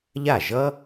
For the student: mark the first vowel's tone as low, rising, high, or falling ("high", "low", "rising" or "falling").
falling